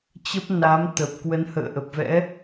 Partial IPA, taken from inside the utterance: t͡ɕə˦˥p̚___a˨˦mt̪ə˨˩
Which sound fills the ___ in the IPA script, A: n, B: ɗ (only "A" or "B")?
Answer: A